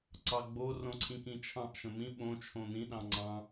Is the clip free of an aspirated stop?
no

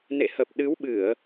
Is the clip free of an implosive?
no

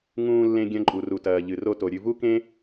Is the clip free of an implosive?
yes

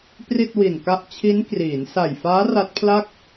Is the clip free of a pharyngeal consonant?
yes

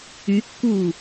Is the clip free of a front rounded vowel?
no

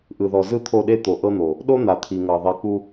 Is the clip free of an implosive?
no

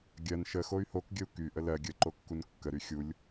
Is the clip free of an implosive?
yes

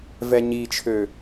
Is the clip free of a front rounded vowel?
no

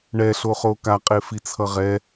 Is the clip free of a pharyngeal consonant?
yes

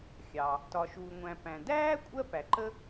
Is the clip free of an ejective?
no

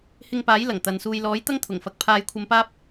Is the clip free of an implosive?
yes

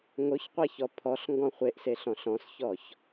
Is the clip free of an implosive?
yes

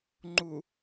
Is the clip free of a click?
no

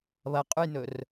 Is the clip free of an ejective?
no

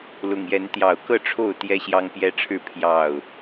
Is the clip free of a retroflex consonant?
no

